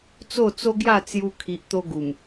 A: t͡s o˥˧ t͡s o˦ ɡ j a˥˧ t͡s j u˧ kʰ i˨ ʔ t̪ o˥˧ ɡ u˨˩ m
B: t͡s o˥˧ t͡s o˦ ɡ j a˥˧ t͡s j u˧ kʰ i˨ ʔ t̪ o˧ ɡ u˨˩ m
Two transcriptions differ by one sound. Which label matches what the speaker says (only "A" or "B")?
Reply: B